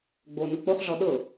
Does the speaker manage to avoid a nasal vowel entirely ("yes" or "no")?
yes